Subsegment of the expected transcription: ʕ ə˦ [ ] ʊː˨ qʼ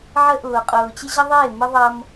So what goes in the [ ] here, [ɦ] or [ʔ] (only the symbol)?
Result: ʔ